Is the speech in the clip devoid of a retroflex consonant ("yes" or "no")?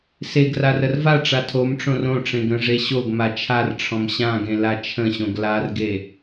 no